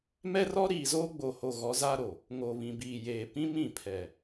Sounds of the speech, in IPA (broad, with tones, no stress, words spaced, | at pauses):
mɛ˦rɔ˦ɾiː˨zoː˦ ɡ͡bo˨ho˨ ɣɔ˨˦za˦ɾo˨ | ŋo˨βĩ˨biː˨jeː˨ pĩ˦ mĩ˦˨pʰɛ˨